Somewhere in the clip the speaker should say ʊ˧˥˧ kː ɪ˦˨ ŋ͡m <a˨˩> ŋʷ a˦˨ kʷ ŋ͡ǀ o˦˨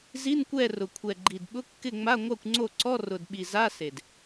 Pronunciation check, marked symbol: incorrect: a˧˥˧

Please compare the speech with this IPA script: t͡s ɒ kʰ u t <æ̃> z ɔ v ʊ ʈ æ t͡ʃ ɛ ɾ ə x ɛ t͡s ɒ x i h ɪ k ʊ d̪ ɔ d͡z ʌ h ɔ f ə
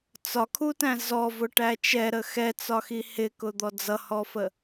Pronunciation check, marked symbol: correct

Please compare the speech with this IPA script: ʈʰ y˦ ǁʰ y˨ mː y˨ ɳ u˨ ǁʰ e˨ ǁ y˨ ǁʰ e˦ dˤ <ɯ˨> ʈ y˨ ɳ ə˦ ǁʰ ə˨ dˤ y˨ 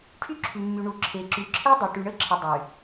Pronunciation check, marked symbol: incorrect: ə˨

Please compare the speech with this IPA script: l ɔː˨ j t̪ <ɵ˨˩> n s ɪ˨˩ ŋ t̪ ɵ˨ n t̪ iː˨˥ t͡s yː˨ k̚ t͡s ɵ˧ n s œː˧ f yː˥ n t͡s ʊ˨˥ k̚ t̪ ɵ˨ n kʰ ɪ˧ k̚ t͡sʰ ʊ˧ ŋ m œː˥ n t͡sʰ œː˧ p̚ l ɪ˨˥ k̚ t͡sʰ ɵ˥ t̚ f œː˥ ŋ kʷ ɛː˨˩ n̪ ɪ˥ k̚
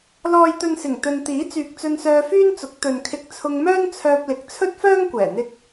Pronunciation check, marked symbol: incorrect: ɵ˨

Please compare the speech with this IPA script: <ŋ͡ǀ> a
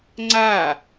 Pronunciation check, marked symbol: correct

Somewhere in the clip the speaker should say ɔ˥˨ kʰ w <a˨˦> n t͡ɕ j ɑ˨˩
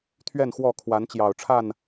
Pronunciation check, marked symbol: correct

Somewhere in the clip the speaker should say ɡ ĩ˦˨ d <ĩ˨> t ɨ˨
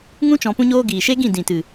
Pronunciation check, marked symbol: correct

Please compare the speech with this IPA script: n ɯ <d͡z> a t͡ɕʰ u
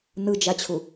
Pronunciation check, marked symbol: incorrect: d͡ʒ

